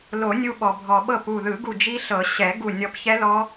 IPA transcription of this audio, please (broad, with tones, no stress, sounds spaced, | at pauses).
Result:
l o˨˩˦ nʲ u˧ ɓ ɔ˩ bʱ ɔ˩ ɓ ɤ˧˩ p u˧˩ ð ɯ˨˩˦ ɡ u˧˩ d͡ʒ i˦˥ ɬ ɤ˨˩˦ ɕ ɛ˨˩˦ ɡ u˧˩ nʲ ɔ˧ p ç ɛ˦˥ l ɔ˦˥